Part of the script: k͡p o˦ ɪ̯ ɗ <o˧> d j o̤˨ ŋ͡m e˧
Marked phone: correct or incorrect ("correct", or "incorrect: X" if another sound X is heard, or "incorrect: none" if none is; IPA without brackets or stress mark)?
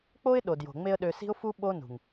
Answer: incorrect: o˨